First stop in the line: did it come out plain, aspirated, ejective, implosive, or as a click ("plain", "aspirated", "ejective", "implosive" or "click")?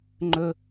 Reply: click